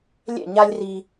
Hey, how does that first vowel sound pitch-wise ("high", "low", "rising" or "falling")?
falling